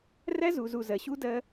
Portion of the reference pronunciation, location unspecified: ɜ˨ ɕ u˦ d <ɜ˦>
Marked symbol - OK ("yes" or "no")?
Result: yes